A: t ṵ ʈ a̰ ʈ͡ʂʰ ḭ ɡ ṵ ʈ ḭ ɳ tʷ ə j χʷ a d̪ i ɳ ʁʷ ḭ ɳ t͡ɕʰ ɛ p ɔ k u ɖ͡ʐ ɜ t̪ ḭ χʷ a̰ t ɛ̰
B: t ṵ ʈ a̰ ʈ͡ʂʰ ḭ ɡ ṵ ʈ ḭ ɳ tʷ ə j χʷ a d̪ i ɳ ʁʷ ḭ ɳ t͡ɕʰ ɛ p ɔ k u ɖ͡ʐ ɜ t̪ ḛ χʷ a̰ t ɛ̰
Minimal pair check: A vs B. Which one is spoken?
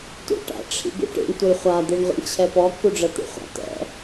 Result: A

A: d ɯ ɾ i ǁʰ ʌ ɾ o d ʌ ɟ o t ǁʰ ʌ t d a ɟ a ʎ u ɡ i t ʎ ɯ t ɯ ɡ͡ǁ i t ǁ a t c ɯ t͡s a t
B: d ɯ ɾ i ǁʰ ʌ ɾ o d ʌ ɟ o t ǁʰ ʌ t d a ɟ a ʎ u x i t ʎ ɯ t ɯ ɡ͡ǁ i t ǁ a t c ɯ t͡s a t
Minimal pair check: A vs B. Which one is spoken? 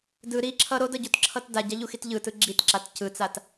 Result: B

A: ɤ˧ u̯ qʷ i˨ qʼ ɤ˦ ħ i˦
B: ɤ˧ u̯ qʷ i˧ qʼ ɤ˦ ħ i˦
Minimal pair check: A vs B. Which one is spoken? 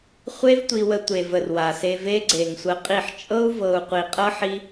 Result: A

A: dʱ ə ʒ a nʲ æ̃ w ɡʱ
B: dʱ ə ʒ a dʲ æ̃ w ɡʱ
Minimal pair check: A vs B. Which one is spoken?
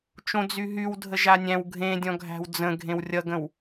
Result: A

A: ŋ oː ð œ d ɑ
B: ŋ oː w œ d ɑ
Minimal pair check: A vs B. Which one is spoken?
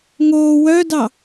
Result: B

